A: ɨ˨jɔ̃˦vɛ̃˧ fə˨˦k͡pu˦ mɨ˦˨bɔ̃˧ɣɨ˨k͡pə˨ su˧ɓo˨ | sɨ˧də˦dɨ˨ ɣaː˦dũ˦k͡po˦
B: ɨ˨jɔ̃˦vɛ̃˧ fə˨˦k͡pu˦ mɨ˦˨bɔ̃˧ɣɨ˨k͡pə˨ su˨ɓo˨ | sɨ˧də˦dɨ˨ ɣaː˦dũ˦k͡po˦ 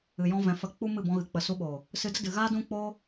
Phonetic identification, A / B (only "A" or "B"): A